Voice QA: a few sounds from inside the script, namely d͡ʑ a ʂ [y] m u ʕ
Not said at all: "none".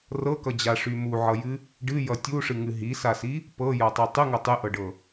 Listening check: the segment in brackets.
y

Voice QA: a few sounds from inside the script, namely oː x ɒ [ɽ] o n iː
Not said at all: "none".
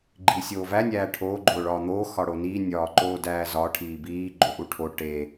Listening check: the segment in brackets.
ɽ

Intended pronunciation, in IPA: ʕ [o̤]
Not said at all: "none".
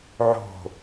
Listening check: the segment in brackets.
o̤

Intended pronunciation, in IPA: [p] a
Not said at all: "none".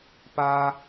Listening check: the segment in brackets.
p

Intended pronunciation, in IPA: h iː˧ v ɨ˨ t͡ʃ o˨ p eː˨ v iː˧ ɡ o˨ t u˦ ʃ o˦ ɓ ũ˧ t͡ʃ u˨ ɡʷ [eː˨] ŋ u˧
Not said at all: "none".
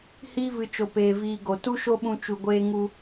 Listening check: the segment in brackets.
eː˧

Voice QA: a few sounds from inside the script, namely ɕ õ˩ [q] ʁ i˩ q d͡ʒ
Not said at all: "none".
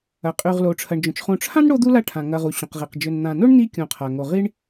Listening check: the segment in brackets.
q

